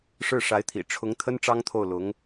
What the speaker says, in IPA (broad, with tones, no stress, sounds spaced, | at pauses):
ʂ ɻ̩˥˩ ʂ a˧˥ ɪ̯ t̪ʰ ḭ˨˩ ʈ͡ʂʰ ʊ˧˥ ŋ t̪ʰ ə˥ n ʈ͡ʂ ɑ˥ ŋ t̪ʰ o˥˩ ʊ̯ l ʊ˧˥ ŋ